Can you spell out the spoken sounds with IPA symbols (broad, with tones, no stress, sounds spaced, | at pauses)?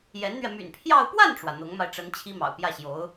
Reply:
j ɛ˧˥ n n̪ ɥ ɛ˧ m y̰˨˩ n pʰ j ɑ˥˧ ʊ̯ p w a˥˩ n ʈ͡ʂ w ä˩ n̪ ʊ˧˥ ŋ m a˧ ɪ̯ ʈ͡ʂ ə˧˥ n t͡ɕʰ i˥ m ɑ̰˨˩ ʊ̯ p j ä˥˩ ɕ j o˧˥ ʊ̯